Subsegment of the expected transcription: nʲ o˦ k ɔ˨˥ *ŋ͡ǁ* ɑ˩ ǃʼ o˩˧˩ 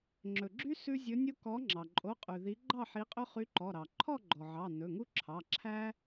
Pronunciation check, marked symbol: correct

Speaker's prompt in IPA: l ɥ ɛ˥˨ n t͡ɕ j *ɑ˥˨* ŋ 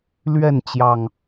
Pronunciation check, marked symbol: incorrect: ɑ˨˩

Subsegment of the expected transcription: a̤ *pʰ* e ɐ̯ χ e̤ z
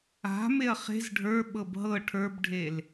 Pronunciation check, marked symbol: incorrect: m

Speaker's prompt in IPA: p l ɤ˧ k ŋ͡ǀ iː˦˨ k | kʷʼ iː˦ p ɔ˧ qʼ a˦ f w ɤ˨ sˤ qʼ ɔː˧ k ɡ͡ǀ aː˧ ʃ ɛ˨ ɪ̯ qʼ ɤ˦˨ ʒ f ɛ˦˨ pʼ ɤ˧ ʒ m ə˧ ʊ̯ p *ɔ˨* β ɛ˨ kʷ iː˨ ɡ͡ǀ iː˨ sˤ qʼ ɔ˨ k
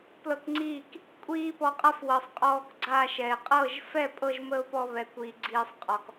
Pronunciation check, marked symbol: incorrect: ɔ˧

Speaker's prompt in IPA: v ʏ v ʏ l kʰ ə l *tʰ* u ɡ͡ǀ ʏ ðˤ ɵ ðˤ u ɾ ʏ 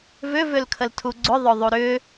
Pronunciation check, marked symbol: correct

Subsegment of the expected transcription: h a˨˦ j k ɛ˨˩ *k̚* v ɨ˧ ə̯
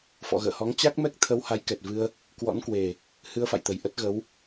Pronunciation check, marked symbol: incorrect: t̚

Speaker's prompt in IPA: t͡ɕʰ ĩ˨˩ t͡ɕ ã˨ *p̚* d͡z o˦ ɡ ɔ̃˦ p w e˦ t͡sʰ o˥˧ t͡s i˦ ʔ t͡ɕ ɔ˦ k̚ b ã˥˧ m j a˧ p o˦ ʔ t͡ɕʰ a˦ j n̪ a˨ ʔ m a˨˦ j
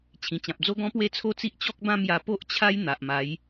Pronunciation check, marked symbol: correct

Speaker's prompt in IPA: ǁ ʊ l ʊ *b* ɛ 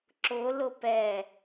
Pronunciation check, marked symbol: incorrect: p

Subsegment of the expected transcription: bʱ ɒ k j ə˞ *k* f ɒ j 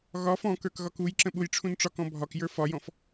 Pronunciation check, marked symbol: incorrect: none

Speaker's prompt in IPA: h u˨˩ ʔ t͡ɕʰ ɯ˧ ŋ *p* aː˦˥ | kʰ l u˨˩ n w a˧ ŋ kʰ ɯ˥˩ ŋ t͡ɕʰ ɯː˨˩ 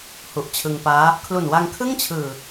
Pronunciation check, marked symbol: correct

